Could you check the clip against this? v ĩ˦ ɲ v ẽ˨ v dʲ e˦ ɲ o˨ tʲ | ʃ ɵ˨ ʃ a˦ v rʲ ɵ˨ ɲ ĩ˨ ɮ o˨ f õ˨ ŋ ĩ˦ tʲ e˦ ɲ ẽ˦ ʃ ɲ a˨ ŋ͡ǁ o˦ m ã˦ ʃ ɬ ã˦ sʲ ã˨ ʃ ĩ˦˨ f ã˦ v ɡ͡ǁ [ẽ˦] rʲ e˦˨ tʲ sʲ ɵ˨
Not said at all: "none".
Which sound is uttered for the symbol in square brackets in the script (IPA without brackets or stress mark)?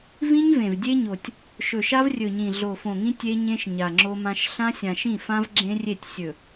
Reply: ẽ˦